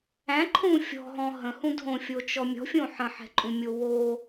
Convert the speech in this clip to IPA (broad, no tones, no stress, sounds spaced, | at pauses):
æ̃ ǃʰ ũ fʲ ɔ̤ ɦ ɔ̃ ɦ ə̃ h ũ dʱ õ fʲ o t͡ʃ ɔ mʲ ɔ̤ fʲ õ ħ ə̃ ħ ɛ̤ ǃʼ ũ mʲ o w o